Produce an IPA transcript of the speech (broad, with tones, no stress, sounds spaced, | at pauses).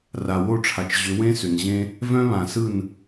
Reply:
r a˨ w o˦˨ ʈ͡ʂʰ a˨ t͡ʃ ʑ ʏ˨˦ w ẽ˦ s ʏ˨ n ʑ ẽ˦ | v œ̃˦ β ã˨ s ɯ˦˨ n